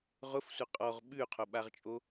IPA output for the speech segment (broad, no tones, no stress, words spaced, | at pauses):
ʁʊfsʷɐ qʼɔʁ ɓʉqʰoɓaʁt͡ʃʼo